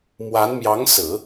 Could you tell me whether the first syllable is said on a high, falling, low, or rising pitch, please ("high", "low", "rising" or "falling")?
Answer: rising